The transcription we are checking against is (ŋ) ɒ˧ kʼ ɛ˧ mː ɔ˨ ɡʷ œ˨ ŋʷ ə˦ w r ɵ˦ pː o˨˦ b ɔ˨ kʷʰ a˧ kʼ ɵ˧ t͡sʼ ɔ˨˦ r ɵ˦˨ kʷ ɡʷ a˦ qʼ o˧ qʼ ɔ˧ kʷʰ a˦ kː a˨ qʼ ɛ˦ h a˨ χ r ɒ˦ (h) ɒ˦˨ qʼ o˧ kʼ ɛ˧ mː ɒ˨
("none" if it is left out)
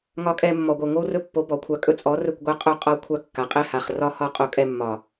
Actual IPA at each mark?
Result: ŋ, h

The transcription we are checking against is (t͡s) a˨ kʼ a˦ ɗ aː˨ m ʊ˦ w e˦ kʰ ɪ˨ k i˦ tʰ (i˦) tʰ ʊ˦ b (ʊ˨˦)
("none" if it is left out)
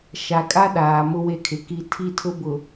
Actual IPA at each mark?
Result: ʃ, i˦˨, ʊ˨

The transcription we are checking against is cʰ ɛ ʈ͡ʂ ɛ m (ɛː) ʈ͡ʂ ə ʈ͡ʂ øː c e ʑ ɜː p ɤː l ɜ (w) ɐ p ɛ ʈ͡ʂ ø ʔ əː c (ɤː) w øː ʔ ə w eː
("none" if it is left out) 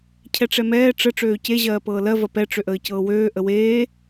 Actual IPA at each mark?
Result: ɛː, v, ɤː

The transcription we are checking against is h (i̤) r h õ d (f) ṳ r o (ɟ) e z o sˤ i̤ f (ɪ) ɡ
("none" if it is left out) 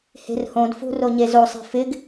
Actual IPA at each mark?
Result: e̤, f, ɲ, ɪ

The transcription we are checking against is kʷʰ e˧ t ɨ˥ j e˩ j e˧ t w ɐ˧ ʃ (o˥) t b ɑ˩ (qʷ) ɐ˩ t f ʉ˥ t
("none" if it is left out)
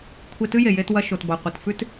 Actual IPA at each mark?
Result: o˩, qʷ

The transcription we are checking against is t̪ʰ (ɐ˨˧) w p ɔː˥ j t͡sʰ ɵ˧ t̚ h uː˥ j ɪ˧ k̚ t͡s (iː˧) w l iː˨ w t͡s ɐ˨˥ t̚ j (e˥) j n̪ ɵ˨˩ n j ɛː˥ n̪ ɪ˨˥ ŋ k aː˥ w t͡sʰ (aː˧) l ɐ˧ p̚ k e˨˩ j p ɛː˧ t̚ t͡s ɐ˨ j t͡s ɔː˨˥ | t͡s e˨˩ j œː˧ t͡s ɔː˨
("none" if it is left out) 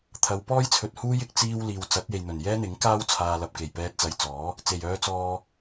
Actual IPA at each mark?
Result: ɐ˨˧, iː˧, e˨, aː˧

